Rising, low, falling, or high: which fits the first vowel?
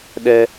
high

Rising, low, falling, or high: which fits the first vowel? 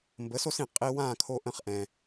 rising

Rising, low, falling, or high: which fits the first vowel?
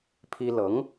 high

